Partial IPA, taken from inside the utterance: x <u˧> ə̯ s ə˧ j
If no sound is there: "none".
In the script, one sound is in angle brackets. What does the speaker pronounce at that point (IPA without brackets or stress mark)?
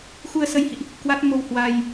u˧